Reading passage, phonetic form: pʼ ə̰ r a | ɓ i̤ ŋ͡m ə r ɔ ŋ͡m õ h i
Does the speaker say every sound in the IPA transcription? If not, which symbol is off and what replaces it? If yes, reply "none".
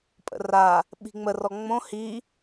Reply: none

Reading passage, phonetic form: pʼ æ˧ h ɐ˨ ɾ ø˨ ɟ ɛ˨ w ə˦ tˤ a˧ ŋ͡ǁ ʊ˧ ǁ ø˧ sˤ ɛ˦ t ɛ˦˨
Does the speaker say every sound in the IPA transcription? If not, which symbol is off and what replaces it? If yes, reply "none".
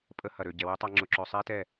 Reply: æ˧ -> ə˧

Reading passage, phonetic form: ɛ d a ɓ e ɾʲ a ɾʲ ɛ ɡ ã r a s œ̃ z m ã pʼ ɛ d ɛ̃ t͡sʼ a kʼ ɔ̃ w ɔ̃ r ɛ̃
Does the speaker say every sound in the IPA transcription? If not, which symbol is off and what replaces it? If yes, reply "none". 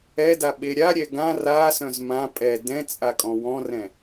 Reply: none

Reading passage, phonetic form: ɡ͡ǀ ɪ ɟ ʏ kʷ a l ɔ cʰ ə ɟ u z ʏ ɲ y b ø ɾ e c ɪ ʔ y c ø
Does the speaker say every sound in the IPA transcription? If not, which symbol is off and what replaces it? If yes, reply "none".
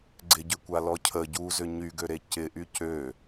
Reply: b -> ɡ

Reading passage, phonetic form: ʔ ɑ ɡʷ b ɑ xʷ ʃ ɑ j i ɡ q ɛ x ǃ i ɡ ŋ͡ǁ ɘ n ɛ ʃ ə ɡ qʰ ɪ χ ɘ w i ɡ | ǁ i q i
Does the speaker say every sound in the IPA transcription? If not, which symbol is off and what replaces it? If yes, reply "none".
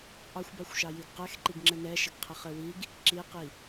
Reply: ɡʷ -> xʷ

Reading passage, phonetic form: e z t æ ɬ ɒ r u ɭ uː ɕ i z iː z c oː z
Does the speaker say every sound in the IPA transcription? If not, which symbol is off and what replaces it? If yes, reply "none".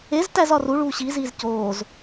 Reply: ɬ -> z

